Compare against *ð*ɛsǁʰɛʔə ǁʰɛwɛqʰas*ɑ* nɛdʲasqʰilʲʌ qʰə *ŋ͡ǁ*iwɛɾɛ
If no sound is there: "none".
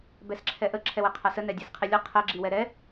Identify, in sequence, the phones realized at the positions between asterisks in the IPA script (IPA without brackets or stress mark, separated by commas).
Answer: b, ə, ɡ͡ǁ